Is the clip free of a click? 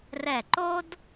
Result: no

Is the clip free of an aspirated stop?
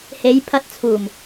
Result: no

